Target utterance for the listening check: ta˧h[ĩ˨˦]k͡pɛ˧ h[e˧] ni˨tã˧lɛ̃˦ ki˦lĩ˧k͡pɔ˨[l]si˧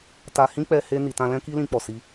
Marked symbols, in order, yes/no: no, yes, no

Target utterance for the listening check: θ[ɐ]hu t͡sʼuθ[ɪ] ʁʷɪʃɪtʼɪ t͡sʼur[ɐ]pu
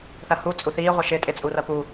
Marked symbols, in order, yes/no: yes, no, yes

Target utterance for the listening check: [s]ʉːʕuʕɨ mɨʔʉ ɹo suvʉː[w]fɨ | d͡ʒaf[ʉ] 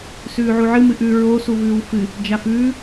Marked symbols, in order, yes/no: yes, yes, no

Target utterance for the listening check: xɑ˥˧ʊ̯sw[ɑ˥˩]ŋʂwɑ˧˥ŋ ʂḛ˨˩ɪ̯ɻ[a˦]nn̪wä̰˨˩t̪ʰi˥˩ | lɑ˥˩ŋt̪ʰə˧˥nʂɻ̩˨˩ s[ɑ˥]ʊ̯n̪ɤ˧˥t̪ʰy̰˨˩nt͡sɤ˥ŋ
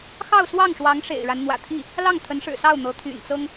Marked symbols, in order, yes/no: yes, yes, no

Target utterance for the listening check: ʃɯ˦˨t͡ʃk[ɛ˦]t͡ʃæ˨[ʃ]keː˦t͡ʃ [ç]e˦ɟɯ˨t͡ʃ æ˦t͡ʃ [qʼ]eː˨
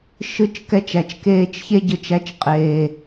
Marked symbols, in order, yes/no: yes, no, yes, yes

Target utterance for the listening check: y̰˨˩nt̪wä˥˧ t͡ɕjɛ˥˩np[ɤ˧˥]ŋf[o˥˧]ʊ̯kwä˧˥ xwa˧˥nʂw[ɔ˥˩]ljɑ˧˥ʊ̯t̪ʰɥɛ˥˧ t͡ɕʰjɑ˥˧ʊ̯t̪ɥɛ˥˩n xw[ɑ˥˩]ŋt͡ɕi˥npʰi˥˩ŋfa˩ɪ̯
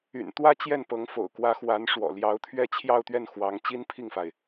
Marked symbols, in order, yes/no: yes, no, no, no

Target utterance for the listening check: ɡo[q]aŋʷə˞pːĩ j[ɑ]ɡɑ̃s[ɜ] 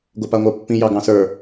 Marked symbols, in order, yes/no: no, yes, no

